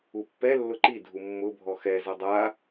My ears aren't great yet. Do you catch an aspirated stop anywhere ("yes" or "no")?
no